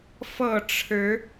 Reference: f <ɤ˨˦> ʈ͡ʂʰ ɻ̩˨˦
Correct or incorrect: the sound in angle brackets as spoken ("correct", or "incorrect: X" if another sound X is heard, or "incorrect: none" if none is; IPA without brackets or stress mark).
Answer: incorrect: ɤ˥˨